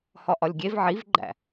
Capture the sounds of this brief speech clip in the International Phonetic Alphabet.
h ɒ ʔ ɒ lʲ ɡʲ e v ʕ i v ɡ͡ǃ æ̰

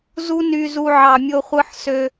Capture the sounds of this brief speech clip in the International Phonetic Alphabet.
z u˦ n y˧ z u˧ ʕ ɑ˨ mʲ o˧ χʷ ɯ˧ ħ s ø˧

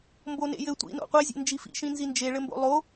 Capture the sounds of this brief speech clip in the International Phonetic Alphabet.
m b o n ḛ j ɘ tʷ ḭ n o̰ qʷ e zʲ ḛ n d͡ʒ i f ḭ ʃ ĩ n z i n d͡ʒ e ɭ ɘ m b o̰ lˠ o

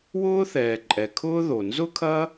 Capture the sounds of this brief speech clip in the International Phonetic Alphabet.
w ʊː˥ θ ɛː˩ ǃʼ ɛ˩ kʰ ʊː˥ ð o˩ n z ʊ˥ kʰ ɐ˥

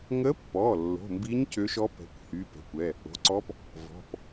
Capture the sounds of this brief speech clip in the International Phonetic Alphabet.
ŋ ə˧˥ pː ɔ˩˧˩ lː o̤˩˧˩ m b i˧˥ ɲ c ø˧˥ ʃ ɔ˧˥ p ɛ̤˩˧˩ kʷ h y˩˧˩ p ɛ̤˩˧˩ kʷ ɛ˩˧˩ | o̤˩˧˩ ǀ ɔ˧˥ p | v ɔ̤˩˧˩ p

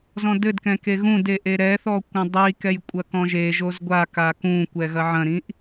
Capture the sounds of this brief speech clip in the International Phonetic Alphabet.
z ɔ̃ d ɘ d k ɛ̃ k e ɣ ũ d e ʔ e ɾ ɛ θ ɔ kʷ ɐ̃ dˤ i k ɛ j kʷʼ ɐ k ɔ̃ ʒ e ʒ o z ɡʷ a k a k ũ kʷ ɛ ɣ ɐ ʕ ɐ̃ ɾ ĩ ʔ

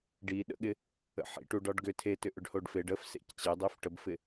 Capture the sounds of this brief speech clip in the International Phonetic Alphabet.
ɖ i ɗ ə̰ ɠ ɪ | ə̰ ħ ḭ ʈ u ɖ ɒ ɖ ɡ ʏ tʰ e t ʏ ʔ ʏ ɖ h o ɖ f e ɖ ə f s ḛ c t͡ɕ e dˤ e f ʈ ə b f ɪ

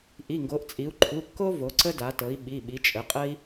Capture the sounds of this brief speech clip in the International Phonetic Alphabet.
ʔ i˩˧˩ ŋ ɡ o˩˧ ʔ t͡sʼ i˩˧ u̯ ǃʰ u˩˧˩ kː o˦ v o˩˧ ǀ ə˦ d a˩˧ t ɤ˩˧ i̯ ɓ i˩˧˩ ɓ i˩˧ t͡ʃʼ ə˩˧ qʼ ə˦ i̯

